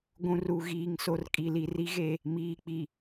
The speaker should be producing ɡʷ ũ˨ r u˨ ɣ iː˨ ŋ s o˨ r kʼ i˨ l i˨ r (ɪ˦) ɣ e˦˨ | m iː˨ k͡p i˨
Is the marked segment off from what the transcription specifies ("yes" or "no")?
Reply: yes